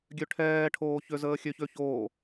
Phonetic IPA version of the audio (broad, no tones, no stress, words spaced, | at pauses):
ɡʲøʈʰɛː ʈʰoːçøzəːxʲø çøçoː